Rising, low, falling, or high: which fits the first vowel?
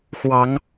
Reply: rising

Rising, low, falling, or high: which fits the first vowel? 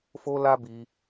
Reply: high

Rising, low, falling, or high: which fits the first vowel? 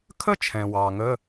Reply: high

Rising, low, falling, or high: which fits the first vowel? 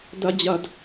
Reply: high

